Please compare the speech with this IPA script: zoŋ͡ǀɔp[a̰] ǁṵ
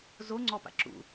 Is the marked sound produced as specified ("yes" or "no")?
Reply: yes